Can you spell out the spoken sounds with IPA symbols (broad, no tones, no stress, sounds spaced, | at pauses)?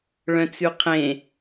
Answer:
ɭ œ̃ t͡s ʉ qʰ ẽ